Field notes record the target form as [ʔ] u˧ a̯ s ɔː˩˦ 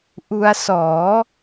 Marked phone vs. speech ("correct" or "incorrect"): correct